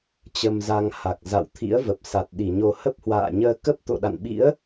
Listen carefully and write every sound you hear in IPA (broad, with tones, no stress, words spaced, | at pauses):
t͡ɕə˧mza˧ŋ ha˨˩k̚za̰ː˧˨wt̪ʰḭ˧˥ə̯və˨˩p̚ sa˨˩t̚ɗi˧˩ɲo˧ hə˦˥p̚hwa̰ː˧˨ɲəː˧ kə˦˥p̚t̪o̰˧˨ɗa̰˧˨nɓḭ˧˥ə̯